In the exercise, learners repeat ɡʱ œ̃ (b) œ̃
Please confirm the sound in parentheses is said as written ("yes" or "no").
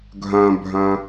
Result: no